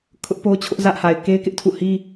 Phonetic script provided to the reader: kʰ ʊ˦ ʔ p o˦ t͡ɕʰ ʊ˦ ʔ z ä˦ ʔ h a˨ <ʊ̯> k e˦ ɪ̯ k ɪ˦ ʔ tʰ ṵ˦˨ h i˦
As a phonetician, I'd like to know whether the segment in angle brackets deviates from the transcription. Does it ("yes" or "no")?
yes